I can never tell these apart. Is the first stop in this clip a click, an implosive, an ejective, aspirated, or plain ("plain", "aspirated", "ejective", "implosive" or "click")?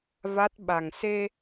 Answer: plain